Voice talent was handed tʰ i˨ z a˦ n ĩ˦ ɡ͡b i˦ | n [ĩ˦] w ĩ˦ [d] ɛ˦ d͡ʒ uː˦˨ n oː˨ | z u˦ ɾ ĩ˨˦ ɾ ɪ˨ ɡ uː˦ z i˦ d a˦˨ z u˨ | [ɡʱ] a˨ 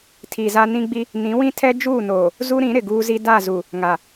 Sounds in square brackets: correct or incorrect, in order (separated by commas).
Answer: incorrect, incorrect, incorrect